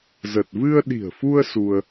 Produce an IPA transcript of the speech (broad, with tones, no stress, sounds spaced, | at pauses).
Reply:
z ə˨˩ t̚ v ɨ˧ ə̯ ɗ i̤˨˩ ə̯ f u˧ ə̯ s u˧ ə̯